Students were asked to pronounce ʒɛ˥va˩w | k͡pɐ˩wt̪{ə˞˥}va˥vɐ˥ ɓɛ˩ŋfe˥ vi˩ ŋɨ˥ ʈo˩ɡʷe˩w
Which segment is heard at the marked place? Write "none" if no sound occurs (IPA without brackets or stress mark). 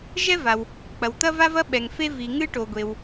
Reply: ɐ˥